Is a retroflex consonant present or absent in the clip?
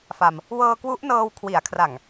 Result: absent